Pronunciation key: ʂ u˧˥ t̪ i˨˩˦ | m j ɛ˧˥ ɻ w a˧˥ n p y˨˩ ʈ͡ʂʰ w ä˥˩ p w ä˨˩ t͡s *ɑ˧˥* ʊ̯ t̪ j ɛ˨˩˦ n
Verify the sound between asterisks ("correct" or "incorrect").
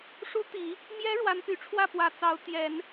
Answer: correct